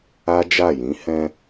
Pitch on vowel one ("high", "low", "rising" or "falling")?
high